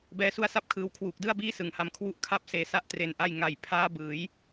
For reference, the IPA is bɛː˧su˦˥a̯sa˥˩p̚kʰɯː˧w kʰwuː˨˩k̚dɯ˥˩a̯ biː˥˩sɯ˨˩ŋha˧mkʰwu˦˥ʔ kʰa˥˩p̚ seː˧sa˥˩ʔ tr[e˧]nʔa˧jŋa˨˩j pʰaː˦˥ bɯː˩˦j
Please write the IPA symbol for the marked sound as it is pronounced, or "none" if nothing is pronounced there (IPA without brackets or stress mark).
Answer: e˨˩